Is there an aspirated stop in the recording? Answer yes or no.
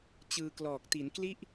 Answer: no